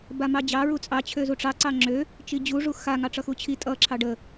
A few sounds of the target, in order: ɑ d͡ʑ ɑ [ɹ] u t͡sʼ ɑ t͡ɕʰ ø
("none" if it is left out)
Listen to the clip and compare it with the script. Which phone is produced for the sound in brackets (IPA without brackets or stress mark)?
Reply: ɹ